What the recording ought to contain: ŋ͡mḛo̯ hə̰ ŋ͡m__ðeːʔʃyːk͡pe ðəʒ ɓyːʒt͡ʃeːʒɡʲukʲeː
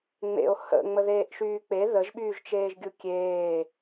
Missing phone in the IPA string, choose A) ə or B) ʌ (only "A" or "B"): A